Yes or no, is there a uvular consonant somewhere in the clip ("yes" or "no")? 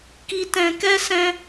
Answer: no